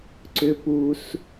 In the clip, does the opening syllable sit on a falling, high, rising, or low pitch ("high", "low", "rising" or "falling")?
low